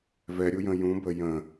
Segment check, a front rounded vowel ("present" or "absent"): absent